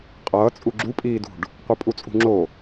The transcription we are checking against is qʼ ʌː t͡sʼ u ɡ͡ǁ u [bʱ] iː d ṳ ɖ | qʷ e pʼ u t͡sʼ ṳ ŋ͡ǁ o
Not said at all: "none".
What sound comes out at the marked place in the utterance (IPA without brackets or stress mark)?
pʼ